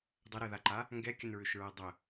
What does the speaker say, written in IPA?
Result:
dˤəɾɛðaǃa | ŋɡɛkʲənɹʏʃɹɛ dˤə

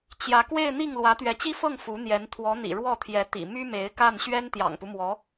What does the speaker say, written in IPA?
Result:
t͡ɕjä˧˥kwe˥˧ɪ̯n̪i˥˩ŋ lwä˧˥t̪ɥɛ˧˥t͡ɕi˥fɤ˥˩ŋ fu˧˥n̪jɛ˧˥n t̪ʰwɔ˧˥n̪ḭ˨˩ ɻwɔ˥˩t̪ʰjɛ˧˥ t̪ḭ˨˩ my˥me˧˥ɪ̯ka˥˩n ɕɥɛ˥nt̪jɑ̰˨˩ŋpu˦mwɔ˧˥

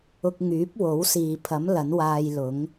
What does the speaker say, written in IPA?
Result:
ʊ˧k̚ŋyː˨˥p̚wo˨˥wsiː˨ pʰɐ˨˥m lɐ˨˥nwaː˧jlʊ˨˥ŋ

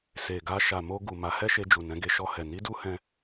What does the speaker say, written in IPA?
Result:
se˨ɡa˧ ʃa˨mo˧ɡu˨ ma˨˦hɛ˦ʃe˧d͡ʒu˨ nɛ̃˨˦ɡe˧ʃɔ˧hɛ˨ ni˨˦du˧hɛ̃˧

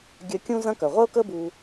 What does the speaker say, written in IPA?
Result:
ɡʲœ˧ kʲũ˥zɐ̃˥kœ˩ ʁʷə˥ʊ̯kə˥ bu˧

